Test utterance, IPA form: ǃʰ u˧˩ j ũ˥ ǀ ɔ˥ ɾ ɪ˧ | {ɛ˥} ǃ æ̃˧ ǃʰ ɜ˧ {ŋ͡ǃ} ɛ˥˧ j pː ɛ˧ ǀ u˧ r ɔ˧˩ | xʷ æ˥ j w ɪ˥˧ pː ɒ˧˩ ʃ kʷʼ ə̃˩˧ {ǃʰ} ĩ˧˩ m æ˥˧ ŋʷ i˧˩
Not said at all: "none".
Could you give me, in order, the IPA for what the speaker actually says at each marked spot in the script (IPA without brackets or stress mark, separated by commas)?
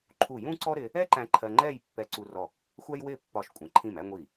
ɛ˥, ŋ͡ǃ, ǃʰ